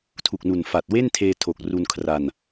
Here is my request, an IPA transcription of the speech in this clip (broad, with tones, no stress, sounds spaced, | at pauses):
tʰ u˨˩ k̚ n u˨˩ n f a˨˩ t̚ w e˥˩ n tʰ eː˧ tʰ o˨˩ k̚ r u˧ n kʰ r a˧ n